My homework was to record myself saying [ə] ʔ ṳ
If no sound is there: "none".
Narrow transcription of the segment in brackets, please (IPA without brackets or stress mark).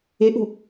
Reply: ɪ